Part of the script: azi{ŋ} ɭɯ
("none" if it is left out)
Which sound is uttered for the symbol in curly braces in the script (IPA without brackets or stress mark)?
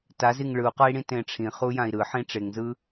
ŋ